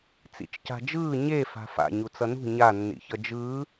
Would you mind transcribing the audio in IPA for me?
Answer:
t͡s ḭ t͡ʃ c a̤ d͡ʒ ɯː ɲ e f a̤ f a̰ ɲ u t͡s ʌ n ṳ ɲ a nː ḭ ç ʌ d͡ʒ ɯː

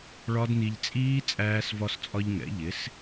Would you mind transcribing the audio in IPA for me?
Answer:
ɭ ɒ˦˥ d n i˧ ʎ t͡sʼ iː˦˥ t͡sʼ æː˧ s v ɒ˧ s t͡sʼ ɒ˧ ʎ ŋ ɛ̰˩˥ ʎ ɪ˩˥ s

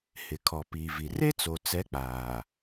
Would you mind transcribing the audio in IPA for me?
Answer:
h ɪ˨ kʰ ɔ˨ p iː˨ v i˨ r e˦ t͡s o˨ t͡s ɛ˨˦ k͡p aː˨

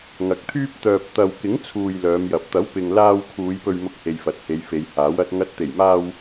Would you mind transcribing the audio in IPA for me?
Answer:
ŋ ɐ˨˥ k̚ t̪ʰ yː˥ p̚ t̪ œː˧ p̚ t̪ ɐ˧ w k ɪ˨˥ ŋ t͡sʰ uː˨ j l œː˨˧ m j ɐ˨ p̚ t̪ ɐ˨˥ w p ɪ˨ ŋ l aː˧ w kʰ uː˨˧ j p ɵ˧ ɥ m ʊ˧ k̚ h e˨ j f ɐ˨ t̚ h e˨˧ j f e˨˧ j h aː˨˥ w ɐ˧ t̚ ŋ ɐ˨˥ t̚ t̪ e˨˩ j m aː˧ w

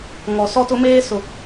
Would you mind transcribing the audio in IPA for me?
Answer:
ŋ ɔ˨ s ɔ˦ t ʊ˦ m eː˦ s ʊ˨

